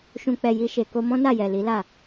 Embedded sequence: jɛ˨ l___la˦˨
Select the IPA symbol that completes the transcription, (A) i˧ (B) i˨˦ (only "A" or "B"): B